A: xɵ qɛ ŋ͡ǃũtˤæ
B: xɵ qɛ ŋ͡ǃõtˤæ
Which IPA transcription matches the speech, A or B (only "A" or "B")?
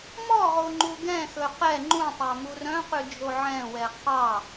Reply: A